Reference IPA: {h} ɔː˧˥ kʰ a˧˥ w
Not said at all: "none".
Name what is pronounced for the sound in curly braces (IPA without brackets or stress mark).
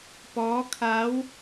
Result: p